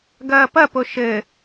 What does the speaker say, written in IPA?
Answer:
ɡ ɐː p ɐ p o ʃ ɘ

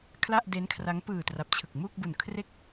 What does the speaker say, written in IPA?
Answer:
kʰ l a˥˩ ʔ d e˦˥ n kʰ r a˦˥ ŋ p ɯː˨˩ t r a˨˩ p̚ t͡ɕʰ ɯ˨˩ k̚ m u˥˩ k̚ b u˨˩ n kʰ r e˦˥ k̚

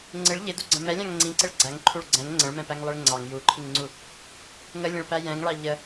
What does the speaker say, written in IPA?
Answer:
ŋ͡ǀ ɪ ɭ ʎ ɪ d u ɡ͡ǀ ə̃ m ɛ lʲ ɑ̃ ŋ ŋ͡ǀ ĩ ǀ ɪ ɭ ɡ͡ǀ æ ŋ ǃʰ u ɭ ɡ͡ǀ ɛ̃ ŋ ŋ͡ǀ ə̃ ɭ m ɛ̃ p æ ŋ lˠ ɪ ɭ ŋ͡ǀ ɑ ŋ j u ǃʰ i ŋ ŋ͡ǀ u | ŋ ə lʲ ə̃ ɭ p æ j ɛ̃ ŋ ɭ ɑ ʎ ə

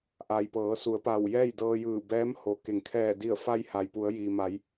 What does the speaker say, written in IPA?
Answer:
ʔ a˩ j p ɤː˩˧ s u˩˧ ə̯ p a˧˩ w j ɛː˥˨ j d ɤː˧ j ɯː˧˩ b ɛː˧˥ m h o˩˧ k e˩˧ ŋ kʰ ɛː˧˩ d i˧˩ ə̯ f a˧ j h a˩ j p u˩˧ ə̯ j iː˩ m a˩˧ j

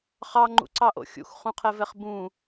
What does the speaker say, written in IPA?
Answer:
χ ɑ ŋ͡ǃ ṵ ǀ ɑ ʔ o̰ xʲ ṵ x χ ũ qʰ ɛ v ɛ χ b ũ

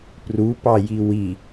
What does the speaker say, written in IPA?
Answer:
p r u p ɑ j i w i

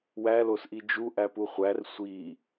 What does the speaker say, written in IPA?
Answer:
w æ l o s ʔ i d͡ʒ u ʔ æ p u χʷ æ r sʷ i

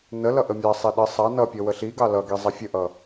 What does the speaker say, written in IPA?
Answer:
n ə l ʌ ʔ ə mʲ ɑ sˤ i ɗ ə sˤ ɑ n ʌ pʲ ʌ w ə ɬ i ɡ ɑ l ʌ ɡ i zˤ ʌ fʲ ə ʔ ʌ

